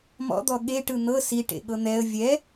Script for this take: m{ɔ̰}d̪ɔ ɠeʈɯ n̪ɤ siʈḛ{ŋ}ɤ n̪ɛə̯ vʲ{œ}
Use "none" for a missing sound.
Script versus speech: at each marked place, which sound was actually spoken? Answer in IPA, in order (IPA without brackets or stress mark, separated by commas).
ɔ̰, ɠ, ɛ